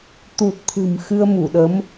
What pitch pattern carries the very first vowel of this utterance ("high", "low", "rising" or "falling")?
low